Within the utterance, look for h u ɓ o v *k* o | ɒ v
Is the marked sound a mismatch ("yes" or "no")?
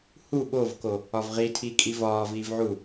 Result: no